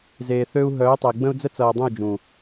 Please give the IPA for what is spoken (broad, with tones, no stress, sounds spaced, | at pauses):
z eː˨ θ ø˦ u̯ ɦ œː˨˦ tˤ ʌ˨ i̯ ɡ͡b ə̃˦ u̯ d͡z ə˦ t͡s ʌː˨ dˤ ə̃˦˨ u̯ d͡ʒ ũ˨